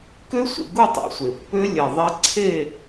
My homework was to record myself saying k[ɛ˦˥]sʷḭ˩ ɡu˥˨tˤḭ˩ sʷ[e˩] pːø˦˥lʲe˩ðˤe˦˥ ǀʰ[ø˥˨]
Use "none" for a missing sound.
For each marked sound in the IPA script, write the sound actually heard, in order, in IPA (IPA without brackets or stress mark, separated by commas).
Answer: ø˦˥, e˩, e˥˨